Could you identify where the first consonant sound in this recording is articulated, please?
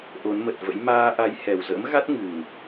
glottal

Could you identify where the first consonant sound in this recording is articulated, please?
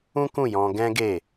velar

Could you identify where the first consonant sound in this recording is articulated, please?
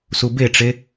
alveolar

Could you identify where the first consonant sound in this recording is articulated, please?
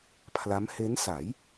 labial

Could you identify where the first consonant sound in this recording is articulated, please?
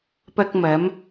labial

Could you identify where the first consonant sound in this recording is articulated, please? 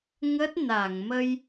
velar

